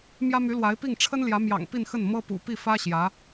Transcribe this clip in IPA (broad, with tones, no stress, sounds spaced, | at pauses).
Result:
m j ä˥ m y˧˥ l w a˧˥ ɪ̯ p i˥˩ ŋ ʈ͡ʂʰ ə˥ n l j ä˧˥ m j ɑ̰˨˩ ŋ p i˥˧ n x ə˥˩ n m ɤ˥ p ṵ˨˩ p i˥˩ f ä˥ ɕ j ä˧˥